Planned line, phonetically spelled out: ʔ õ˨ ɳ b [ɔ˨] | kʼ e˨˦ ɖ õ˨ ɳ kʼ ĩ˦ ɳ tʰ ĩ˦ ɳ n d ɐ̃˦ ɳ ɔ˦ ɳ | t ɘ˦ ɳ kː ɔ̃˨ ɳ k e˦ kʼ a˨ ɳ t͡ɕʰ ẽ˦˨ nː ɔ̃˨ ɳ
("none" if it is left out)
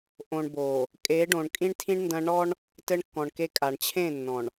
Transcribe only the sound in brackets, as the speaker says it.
o˨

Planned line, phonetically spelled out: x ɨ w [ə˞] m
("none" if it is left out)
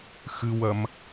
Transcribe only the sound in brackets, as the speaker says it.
ɐ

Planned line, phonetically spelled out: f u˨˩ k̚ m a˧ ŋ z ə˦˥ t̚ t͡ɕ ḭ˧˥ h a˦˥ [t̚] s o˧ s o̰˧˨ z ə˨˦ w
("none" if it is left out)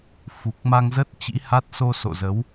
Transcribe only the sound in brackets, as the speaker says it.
t̚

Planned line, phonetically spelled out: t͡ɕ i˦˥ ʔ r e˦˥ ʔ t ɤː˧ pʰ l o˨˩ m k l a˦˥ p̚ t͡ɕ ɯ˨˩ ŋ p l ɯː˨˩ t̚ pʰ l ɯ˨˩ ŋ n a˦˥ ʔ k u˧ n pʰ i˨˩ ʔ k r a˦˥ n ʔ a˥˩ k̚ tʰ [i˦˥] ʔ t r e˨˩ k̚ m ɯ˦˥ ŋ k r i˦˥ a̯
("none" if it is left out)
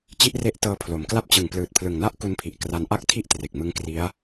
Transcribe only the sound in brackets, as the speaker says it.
i˥˩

